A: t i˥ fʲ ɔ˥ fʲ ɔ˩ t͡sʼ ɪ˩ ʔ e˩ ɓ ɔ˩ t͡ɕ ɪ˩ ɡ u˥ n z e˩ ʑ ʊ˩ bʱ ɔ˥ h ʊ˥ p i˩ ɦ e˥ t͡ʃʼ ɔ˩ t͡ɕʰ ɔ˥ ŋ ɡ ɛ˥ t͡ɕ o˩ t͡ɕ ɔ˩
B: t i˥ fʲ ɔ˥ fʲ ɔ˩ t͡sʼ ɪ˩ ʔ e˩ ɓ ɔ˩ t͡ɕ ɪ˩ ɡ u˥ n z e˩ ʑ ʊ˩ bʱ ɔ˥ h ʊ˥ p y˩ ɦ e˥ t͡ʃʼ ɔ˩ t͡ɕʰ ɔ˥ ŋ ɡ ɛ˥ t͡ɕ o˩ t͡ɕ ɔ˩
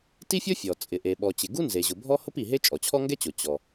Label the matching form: A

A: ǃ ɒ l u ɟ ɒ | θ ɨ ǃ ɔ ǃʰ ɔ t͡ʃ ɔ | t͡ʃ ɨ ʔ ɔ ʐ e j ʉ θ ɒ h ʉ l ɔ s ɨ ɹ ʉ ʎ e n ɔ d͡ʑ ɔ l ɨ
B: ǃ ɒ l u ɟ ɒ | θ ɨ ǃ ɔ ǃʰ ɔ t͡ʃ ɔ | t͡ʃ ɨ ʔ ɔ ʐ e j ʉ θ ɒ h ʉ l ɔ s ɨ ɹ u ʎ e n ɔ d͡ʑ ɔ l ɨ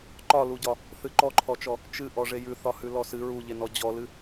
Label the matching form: B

